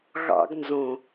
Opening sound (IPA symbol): ɣ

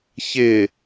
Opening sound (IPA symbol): ç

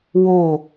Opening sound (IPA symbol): w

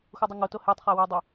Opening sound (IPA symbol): x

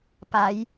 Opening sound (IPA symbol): p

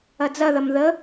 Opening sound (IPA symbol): ɐ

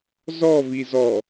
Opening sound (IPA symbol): z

